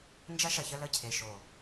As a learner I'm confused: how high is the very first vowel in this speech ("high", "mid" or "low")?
low